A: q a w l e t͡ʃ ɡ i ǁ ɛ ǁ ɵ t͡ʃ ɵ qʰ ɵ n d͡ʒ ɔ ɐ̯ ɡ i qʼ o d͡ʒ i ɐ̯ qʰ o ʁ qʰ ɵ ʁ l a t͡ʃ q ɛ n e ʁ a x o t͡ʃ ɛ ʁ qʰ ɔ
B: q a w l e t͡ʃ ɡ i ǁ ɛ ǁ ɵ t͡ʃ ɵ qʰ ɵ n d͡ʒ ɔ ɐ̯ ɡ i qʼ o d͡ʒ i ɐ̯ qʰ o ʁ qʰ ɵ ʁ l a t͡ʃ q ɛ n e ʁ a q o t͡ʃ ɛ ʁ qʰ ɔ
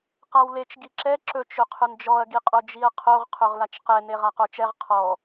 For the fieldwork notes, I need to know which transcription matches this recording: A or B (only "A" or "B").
B